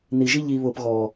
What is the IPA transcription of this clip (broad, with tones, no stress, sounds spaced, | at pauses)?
n̪ i˨ ʒ i˦ ʎ i˨ β ʊː˨ p ɣ ɔː˨